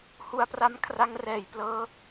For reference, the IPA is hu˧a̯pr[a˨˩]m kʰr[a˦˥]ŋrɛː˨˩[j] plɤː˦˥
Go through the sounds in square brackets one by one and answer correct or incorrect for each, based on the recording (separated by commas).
incorrect, correct, correct